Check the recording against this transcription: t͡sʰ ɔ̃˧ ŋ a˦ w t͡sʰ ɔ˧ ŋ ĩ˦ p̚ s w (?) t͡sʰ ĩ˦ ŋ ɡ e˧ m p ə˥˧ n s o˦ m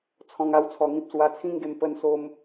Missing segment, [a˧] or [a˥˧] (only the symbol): a˧